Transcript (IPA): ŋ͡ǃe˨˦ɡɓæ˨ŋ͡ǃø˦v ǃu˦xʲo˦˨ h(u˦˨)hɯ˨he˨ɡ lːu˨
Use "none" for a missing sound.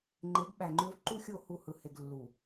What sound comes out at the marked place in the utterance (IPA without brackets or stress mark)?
u˦˨